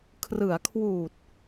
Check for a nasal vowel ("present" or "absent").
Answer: absent